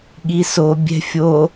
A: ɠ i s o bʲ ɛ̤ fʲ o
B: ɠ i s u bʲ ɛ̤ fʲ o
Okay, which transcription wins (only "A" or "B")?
A